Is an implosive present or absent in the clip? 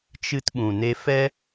present